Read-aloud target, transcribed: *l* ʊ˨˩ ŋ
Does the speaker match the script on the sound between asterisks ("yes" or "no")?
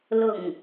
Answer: yes